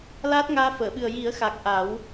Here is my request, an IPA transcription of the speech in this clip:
l aː˦˥ t̚ ŋ aː˧ f əː˨˩˨ ɓ ɨ˨˩ ə̯ j i˨˩˦ ə̯ x a˨˩ k̚ ʔ a˨˩˦ w

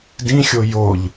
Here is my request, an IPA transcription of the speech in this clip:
d ĩ xʲ o j o ʎ

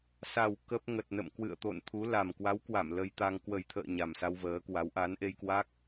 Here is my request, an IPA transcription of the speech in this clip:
s a˨˩ w k ə˦˥ p̚ ŋ ə˨˩ t̚ n ə̰˧˨ m k w ɨ̰˧˨ ə̯ t̪ o̰˧˨ n t̪ʰ u˨˦ l a˨˩ m k w a˨˦ w k w a˧˩ m l ə˧ j t̪ a˧ ŋ k w ə˨˩ j t̪ʰ ə̰ː˧˨ ɲ a˨˩ m s a˧ w v əː˨˦ k w a˨˦ w ʔ a˨˦ n ʔ e˧ j k w a˦˥ k̚

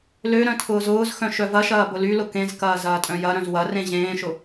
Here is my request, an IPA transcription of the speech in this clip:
l ø ɾ œ̃ tʰ ʊː z ʊː z x œ̃ ʃ œ v ɐ ʃ ɐː b ʊ l y l ʊ k ẽ z k ɐː z ɐː tʼ œ̃ j ɐ ɾ œ̃ z w ɐ r ẽ ʑ ẽː ʃ ʊ

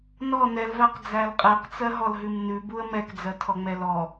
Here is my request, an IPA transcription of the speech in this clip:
n ɔ n ɛ l v æ q d͡z æ l qʼ ɛ q t͡s ɜ ɦ ɔ l ɦ ʉ m n ʉ b u ə̯ m ɛ k d͡z ɜ tʰ ɔ ŋ͡m ɛ l ɔ

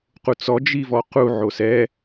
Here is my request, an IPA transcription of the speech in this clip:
q u t͡s ɔ d͡ʒ i v ɔ q u ʕ o s ɛ

